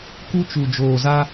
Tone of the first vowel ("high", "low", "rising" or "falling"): high